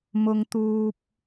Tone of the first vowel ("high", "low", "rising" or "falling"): high